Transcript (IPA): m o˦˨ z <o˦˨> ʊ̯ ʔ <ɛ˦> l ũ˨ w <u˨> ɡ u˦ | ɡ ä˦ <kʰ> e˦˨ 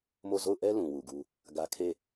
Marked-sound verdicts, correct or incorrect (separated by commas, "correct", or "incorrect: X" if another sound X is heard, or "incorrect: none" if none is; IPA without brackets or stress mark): correct, correct, correct, correct